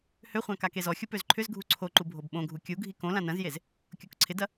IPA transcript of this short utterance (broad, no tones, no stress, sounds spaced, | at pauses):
h ø χʷ ã k a k e z ɔ xʲ u p ø z ǃʰ ʏ z ɡʱ u ǀʰ o ǃ u bʱ o b ɓ õ ɡʱ u kʲ u ɡʱ i k õ l ã n ɐ̃ z j e z | kʲ o k ǀʰ ɪ d ɐ